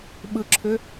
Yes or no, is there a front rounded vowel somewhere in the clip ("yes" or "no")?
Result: yes